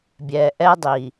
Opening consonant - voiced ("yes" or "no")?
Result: yes